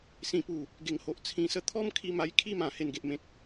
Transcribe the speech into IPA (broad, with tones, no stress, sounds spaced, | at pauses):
s ĩ˨˩ p u˨˩ | ɡ e˨˩ ŋ h o˨ ʔ t͡sʰ ĩ˨˩ s ə˧ t̪ʰ ɔ˦ m kʰ i˧ m a˧ j kʰ i˦ m ã˨˩ h e˨˩ n ɡ e˨ ʔ m ẽ˨ k̚